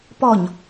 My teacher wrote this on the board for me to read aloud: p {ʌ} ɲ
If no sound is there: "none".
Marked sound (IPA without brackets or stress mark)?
ɔ